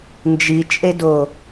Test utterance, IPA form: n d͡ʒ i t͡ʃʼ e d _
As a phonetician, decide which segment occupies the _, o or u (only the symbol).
o